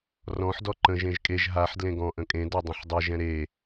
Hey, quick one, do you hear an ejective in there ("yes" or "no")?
yes